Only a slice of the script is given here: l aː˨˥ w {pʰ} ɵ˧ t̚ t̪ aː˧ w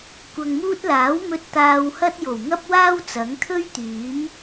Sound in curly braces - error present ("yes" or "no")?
yes